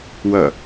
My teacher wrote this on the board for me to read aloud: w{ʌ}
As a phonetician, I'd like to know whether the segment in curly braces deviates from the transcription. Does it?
no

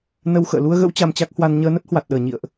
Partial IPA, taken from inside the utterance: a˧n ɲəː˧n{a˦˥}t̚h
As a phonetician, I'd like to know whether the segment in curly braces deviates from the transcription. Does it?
yes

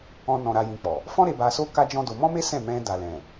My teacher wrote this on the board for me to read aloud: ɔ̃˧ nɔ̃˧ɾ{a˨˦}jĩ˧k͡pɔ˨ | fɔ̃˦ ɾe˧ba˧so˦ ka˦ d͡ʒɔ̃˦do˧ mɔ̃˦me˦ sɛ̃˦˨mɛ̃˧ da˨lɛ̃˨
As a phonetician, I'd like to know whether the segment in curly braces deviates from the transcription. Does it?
yes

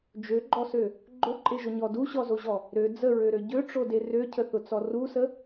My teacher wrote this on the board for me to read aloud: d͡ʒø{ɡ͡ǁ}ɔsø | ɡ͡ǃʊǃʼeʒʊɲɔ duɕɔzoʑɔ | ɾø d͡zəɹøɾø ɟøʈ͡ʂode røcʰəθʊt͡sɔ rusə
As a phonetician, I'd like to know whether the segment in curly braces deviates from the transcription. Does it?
yes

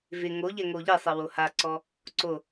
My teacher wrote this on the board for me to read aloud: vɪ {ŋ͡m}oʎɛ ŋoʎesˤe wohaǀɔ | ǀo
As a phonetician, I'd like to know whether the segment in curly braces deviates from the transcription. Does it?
yes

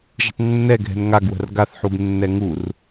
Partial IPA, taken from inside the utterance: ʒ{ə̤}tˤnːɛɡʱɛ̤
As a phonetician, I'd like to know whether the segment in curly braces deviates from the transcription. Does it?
no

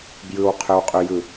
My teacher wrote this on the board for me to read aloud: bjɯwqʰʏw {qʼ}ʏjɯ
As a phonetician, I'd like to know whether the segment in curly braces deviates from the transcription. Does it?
no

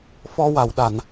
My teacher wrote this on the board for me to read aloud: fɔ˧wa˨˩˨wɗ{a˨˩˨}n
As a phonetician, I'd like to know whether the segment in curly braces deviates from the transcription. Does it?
no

